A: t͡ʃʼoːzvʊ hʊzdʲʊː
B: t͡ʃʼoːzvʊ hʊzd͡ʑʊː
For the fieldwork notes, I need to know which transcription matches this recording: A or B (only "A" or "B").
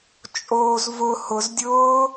A